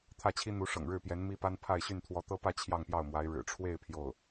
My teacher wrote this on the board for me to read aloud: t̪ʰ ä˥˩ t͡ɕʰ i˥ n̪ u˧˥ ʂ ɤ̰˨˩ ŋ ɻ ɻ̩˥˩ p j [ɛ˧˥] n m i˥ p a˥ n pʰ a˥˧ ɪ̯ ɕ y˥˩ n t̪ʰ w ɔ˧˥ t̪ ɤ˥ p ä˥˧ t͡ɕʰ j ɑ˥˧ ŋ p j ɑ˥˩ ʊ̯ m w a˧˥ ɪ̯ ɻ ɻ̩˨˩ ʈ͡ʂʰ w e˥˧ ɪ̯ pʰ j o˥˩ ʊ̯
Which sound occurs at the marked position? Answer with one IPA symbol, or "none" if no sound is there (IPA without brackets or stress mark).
ɛ˧˥